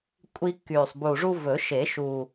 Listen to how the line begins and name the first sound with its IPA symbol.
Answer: kʷʼ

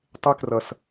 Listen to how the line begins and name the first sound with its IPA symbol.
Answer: tˤ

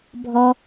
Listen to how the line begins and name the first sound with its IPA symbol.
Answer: bʱ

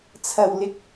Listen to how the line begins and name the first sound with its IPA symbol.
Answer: t͡sʰ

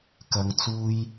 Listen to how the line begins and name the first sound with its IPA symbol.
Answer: k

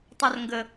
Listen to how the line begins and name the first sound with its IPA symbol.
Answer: tˤ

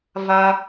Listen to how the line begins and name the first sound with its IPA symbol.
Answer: v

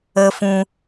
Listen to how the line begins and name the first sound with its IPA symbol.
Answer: ə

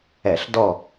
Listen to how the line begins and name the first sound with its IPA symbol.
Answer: ɛ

